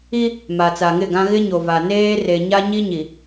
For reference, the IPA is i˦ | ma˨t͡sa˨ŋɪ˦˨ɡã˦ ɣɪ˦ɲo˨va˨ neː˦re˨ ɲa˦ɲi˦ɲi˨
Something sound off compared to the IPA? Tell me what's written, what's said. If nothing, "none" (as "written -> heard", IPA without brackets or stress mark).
none